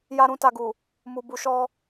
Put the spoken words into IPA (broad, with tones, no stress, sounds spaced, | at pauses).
j a˧ ɾ ũ˧ t a˨ ɡ u˨ | m u˨ b u˨ ʃ ɔ˧